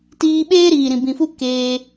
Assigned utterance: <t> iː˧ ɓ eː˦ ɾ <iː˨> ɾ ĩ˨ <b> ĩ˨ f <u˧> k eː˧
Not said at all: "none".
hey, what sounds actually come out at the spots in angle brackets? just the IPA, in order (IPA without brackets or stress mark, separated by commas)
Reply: t, iː˨, b, u˦